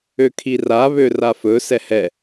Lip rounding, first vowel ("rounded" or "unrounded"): rounded